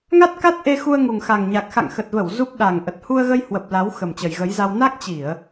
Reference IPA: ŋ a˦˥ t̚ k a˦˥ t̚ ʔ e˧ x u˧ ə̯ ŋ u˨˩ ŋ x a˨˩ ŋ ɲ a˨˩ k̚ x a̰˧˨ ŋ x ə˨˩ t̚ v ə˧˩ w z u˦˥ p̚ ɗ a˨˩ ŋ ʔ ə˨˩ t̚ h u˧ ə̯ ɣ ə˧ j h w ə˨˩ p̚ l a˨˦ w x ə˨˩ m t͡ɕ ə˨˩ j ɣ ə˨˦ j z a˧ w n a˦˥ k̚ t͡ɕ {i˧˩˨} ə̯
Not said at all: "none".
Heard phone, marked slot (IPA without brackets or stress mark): i˧˩˨